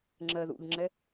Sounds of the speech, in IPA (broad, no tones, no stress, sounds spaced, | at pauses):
ŋ͡ǁ ɜ ð ṵ ʎ ŋ͡ǁ ɛ